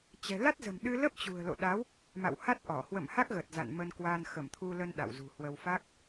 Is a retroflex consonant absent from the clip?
yes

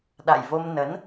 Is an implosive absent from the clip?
no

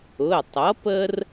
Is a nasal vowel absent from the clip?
yes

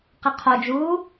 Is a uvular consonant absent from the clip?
no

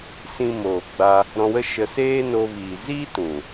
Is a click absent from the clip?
yes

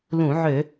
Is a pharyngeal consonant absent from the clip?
no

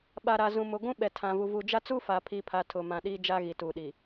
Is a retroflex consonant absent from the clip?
yes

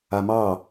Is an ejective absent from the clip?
yes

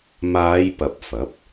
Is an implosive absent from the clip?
yes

